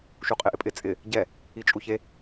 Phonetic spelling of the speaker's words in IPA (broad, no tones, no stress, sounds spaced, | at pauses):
ʃ u qʼ ɪ ʔ ɪ pʼ ɪ t͡sʼ ɪ | ɟ ɛ | i t͡ʃʼ u ç e